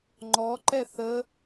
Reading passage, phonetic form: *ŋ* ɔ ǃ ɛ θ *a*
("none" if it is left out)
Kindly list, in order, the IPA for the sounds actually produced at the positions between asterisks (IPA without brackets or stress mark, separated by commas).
ŋ͡ǃ, ə